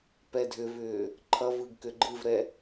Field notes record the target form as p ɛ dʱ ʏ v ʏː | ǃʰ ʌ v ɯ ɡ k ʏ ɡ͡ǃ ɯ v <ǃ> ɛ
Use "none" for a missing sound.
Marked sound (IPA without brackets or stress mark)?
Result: ɾ